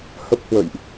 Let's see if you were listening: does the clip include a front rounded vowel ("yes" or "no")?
no